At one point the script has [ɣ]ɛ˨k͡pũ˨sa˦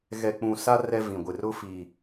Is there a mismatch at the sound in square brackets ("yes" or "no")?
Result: no